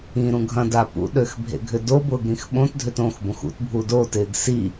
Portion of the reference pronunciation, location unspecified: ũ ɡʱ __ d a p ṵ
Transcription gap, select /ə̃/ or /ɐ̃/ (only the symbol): ɐ̃